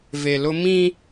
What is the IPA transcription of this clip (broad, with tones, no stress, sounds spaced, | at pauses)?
v e˨ l ʊ˦ m ĩ˦